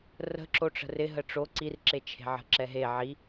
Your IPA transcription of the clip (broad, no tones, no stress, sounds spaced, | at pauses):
r ə̤ ǁ o ʈ͡ʂ ə̤ r ɪ ɦ ə ʈ͡ʂ o ǀ i r ǁ e t͡ʃʰ e̤ ʕ ə̤ ǁ ɛ ɦ e ʕ i